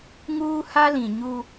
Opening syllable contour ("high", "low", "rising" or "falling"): high